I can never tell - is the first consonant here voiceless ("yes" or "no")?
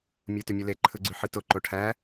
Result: no